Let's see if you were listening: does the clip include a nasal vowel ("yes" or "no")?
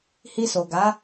no